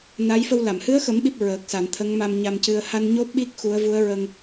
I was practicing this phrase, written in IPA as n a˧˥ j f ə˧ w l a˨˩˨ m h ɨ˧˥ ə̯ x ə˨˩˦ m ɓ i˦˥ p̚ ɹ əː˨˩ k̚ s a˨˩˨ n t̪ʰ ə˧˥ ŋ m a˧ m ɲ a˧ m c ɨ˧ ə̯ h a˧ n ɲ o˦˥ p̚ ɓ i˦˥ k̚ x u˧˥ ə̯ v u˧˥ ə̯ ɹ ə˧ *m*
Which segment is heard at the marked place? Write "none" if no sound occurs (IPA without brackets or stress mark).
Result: ŋ